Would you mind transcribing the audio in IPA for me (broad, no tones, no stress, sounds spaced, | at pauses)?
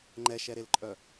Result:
ŋ͡ǃ ɛ ʃ ɛ ɾ e l ǃʼ œ